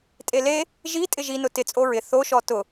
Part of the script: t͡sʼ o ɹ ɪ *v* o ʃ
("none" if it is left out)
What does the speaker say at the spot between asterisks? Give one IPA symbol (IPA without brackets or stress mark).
θ